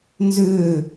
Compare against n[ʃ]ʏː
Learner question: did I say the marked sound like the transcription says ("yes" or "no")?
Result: no